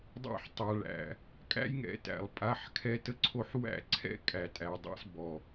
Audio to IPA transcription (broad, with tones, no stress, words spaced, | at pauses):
dˤæ̰˦ħtˤa˨ɭæ̰˨ | kʼæ̰˦jŋɛ̰˨ tæ̰˨lˠ pʼa˨˦ħkʰɛ˦tə˦ǀʰo˦ħ wæ̰˦˨ǀʰɛ̰˦kʼæ˨tʼæ˨ dˤa̰˦sbɔ˨